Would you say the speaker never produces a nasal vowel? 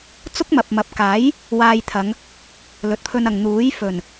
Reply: yes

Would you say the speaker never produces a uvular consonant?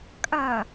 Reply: yes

